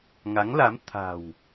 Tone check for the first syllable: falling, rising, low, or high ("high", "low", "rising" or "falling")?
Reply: rising